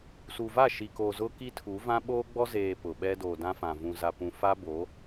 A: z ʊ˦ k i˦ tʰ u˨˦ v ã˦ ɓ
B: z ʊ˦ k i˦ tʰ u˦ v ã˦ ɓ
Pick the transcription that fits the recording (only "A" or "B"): A